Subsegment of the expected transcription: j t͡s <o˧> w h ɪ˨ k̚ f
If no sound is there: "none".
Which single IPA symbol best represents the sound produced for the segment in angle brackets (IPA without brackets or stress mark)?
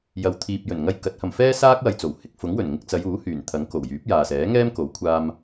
o˨˩